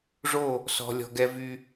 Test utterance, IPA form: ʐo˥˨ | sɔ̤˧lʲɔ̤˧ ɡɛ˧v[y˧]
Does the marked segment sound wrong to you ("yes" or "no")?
no